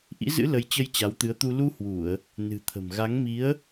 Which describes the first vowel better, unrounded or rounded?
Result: unrounded